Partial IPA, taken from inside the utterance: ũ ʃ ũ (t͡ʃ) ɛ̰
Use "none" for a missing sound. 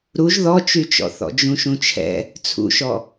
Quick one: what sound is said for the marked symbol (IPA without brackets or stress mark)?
t͡ʃʰ